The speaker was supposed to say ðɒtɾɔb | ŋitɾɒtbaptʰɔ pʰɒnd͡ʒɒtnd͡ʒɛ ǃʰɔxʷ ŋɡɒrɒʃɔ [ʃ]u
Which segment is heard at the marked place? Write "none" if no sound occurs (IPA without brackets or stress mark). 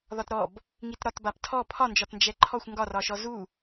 z